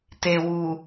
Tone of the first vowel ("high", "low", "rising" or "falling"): low